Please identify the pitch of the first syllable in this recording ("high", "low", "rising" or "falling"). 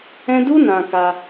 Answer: high